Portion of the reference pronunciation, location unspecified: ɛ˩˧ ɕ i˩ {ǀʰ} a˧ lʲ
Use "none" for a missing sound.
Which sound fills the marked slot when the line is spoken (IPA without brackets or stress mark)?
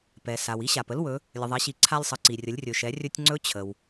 ǀʰ